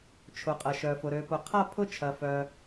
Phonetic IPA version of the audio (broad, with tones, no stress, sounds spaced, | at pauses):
t͡ʃʰ ʊ˩ qʼ ɐ˩ ʃ œ˩ f ʊ˩ ɾ ø˩ p ʊ˩ qʰ a˥˧ pʰ ʊ˥˧ t͡ʃʰ ɐ˩ f œ˩